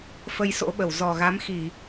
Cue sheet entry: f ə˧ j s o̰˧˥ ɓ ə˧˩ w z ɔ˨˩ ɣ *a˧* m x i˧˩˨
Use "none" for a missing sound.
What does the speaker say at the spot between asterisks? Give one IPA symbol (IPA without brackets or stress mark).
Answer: a˨˦